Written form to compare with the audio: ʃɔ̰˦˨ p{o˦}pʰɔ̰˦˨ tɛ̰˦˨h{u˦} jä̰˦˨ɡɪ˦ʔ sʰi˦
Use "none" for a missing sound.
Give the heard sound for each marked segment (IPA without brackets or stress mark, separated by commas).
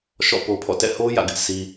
o˦, o˦